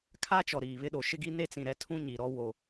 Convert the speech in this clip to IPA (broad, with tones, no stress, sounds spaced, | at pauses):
kʰ a˦ t͡ʃ ɔ˨ ɾ iː˨ β ɪ˦ ɗ o˨ ʃ ɪ˦ ɡ i˦ n e˦ t͡s ĩ˨ ɾ ɛ˨˦ tʰ ũ˦ ɲ i˨ ɾ ɔ˦ w o˨